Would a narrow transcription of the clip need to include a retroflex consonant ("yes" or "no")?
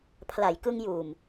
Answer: no